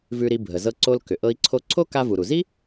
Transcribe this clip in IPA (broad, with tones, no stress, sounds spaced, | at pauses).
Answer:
v ʉ˧ ɾ i˧ bʱ ə˩ z ɤ˧ ǀ o˧ l k ʏ˩ ʔ ɤ˧ i̯ ǀʰ o˧ ǀʰ o˥ k a˧ v u˩ ɾ u˩ z i˥